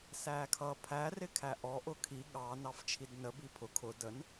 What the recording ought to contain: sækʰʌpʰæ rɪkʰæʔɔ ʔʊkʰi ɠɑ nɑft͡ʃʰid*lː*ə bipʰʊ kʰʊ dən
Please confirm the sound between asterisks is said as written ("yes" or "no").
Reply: no